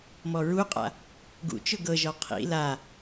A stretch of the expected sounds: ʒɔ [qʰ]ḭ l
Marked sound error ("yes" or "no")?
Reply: no